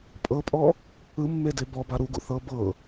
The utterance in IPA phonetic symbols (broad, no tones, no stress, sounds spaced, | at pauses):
pʼ ɤ pʼ ɔ | ɯ mː e d e b ɔ b a ɾ u ɡ ṵ θ ɤ b ɤ